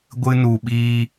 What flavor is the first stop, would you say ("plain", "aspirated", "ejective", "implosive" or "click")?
plain